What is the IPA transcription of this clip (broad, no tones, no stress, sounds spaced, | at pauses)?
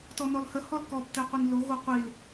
t ɔ n ɔ l h ə h ɔ l k ɔ b t ɛ qʷ i n l o ɣ o qʷ i l